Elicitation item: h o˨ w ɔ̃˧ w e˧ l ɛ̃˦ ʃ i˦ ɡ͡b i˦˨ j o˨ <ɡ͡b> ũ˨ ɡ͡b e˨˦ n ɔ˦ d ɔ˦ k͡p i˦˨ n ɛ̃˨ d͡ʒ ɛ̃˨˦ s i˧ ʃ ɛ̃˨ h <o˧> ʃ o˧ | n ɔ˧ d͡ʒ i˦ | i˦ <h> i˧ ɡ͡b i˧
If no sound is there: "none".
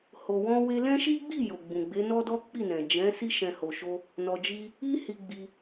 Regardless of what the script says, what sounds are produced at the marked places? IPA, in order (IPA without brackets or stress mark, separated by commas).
ɡ͡b, o˨, h